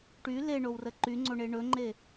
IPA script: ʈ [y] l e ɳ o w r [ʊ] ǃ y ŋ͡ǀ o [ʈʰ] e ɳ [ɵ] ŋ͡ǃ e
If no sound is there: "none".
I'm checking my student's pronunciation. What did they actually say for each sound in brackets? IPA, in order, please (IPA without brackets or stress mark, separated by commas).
y, ə, ɳ, ɵ